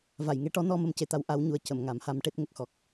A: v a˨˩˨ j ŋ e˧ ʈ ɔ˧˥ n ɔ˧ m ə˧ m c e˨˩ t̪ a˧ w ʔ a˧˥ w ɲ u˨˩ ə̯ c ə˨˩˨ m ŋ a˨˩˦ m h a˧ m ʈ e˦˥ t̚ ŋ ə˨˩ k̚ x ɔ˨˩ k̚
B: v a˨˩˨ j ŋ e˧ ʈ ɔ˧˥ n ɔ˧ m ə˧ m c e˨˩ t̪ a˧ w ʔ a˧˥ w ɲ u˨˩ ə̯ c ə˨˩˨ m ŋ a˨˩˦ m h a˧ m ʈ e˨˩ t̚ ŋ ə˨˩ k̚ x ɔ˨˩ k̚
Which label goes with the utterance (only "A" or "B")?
A